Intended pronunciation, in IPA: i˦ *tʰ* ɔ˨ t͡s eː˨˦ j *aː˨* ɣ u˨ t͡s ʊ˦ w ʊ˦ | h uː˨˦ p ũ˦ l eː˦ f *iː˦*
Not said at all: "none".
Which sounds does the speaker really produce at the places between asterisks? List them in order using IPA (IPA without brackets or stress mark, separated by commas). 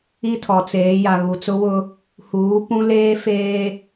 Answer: tʰ, a˨, eː˦